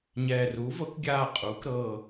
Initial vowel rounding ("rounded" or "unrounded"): unrounded